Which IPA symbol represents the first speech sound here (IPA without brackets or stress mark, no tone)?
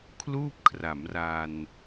kʰ